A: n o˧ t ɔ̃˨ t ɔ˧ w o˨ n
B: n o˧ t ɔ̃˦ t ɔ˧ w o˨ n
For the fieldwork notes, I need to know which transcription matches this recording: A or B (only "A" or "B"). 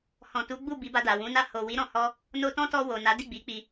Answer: B